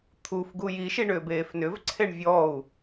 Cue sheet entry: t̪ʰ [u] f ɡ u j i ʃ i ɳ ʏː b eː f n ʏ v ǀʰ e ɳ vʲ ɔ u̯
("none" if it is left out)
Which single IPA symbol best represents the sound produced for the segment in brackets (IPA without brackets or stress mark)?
u